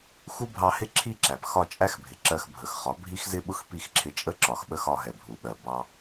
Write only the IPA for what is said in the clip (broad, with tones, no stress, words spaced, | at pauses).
xu˦bʱɑ˧hɪ˦ ǁʰi˦ǁæ˨p xɒ˦˨t͡ʃʼæ˦xbʱɪ˨ ǁɜ˧xbʱə˨xχɒ˨˦ bʱi˦xzɪ˦ɓʊ˦x pi˦˨xǁʰɪ˧t͡ʃʼə˦ ǁɒ˨xɓə˦xɒ˧ ɦɛ˨bʱu˨ɓɜ˨ bɑ˧